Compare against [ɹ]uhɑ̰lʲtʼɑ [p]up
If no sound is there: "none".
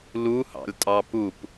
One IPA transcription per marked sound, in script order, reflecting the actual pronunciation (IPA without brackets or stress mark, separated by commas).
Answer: l, p